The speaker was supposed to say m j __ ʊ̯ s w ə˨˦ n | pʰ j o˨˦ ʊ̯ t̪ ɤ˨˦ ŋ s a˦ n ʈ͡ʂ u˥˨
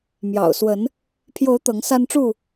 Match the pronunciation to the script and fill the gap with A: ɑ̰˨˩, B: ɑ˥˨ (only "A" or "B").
A